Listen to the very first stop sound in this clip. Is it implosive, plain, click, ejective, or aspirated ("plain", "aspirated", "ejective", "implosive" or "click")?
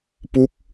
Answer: plain